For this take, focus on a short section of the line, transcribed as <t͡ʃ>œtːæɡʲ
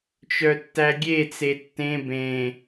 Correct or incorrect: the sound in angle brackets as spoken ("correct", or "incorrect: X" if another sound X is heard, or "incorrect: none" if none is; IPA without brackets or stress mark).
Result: correct